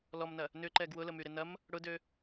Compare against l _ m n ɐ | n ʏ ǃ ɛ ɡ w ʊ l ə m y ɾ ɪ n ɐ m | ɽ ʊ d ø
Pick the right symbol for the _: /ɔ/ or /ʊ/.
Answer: ɔ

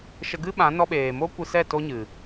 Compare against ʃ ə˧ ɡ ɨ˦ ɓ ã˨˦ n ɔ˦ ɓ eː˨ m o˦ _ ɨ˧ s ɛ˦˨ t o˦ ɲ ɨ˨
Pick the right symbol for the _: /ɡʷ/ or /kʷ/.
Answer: kʷ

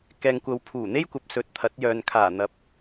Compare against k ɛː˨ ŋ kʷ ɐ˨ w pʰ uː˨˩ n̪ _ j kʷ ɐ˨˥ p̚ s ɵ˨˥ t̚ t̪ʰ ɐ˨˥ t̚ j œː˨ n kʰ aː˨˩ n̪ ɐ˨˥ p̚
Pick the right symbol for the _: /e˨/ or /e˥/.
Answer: e˥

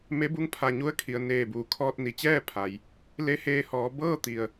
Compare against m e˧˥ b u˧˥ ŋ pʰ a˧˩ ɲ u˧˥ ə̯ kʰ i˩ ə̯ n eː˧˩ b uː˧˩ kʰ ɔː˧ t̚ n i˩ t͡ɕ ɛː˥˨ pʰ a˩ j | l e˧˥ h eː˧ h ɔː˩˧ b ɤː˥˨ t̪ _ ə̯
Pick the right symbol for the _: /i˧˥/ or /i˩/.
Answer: i˩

